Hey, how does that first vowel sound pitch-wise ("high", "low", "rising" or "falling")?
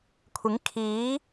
rising